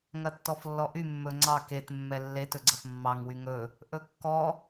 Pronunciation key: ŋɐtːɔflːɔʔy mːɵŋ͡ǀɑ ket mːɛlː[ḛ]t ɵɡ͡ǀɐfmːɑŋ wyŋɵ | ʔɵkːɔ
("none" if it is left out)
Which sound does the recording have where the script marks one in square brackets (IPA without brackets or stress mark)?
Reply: e